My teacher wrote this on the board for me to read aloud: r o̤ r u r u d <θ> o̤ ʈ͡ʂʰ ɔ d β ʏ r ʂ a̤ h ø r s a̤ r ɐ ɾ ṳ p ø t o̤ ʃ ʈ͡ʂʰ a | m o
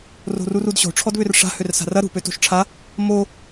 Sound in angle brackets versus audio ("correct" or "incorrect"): incorrect